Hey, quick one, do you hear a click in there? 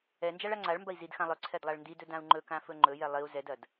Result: yes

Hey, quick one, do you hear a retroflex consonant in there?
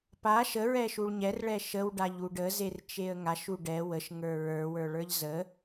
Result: yes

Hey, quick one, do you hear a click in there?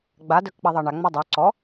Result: yes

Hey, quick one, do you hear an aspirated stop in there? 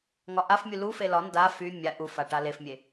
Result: no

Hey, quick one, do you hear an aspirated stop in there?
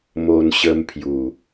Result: yes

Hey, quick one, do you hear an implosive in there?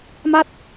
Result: no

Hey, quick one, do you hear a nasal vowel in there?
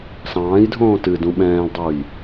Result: yes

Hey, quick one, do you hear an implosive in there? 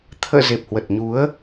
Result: no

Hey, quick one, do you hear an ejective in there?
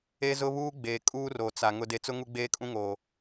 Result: yes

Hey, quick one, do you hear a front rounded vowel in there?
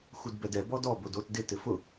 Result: no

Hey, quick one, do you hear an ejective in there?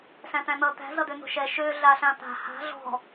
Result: no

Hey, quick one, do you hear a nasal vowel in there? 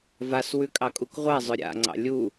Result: no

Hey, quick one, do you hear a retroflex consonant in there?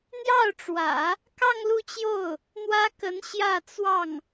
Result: yes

